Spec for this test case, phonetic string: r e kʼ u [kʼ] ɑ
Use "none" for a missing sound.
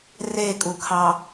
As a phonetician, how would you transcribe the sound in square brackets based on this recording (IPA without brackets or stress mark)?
kʰ